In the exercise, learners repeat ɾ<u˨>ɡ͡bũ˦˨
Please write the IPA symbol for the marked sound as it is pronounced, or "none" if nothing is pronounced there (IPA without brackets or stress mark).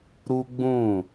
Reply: u˦